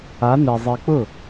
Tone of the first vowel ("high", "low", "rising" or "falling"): rising